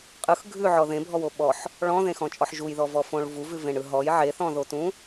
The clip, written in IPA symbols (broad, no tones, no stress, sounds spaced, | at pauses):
qʼ ɯ x ɡʱ ʉ ʕ ɔ ð ẽ bʱ ɔ w o ɓ ɔ ħ | ɭ ɔ̃ ð ẽ x ɔ̃ t͡ʃʼ ɔ ħ ʒ u j ð ɔ v ɔ f õ ɭ v u v ʉ v ẽ ɳ ɯ ɦ ɔ j ʕ e θ ɔ̃ ð o t ũ